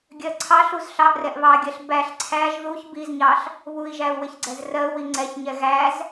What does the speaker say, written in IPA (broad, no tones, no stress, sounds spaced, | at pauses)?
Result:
ɡʲ ɜ ǀʰ ɑ ɬ u z ɬ ɑ ʔ r ɛ ʔ β ɑ ɡʲ ɜ ɬ b æ ɬ ǀʰ æ ʒ ð u ç b i z ɲ ɑ ɬ | β u i̯ ʒ æ u̯ w ɪ ç ɡ͡ǀ ɛ z r ɜ u̯ w i ŋ͡ǀ ɛ ç ɲ ɛ ɣ æ z